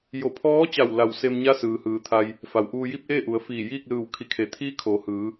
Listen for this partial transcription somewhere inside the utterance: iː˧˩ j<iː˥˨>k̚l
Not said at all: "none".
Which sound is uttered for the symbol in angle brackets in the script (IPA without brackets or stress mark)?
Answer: iː˥˨